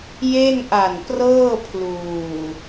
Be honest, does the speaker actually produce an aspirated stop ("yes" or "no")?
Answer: yes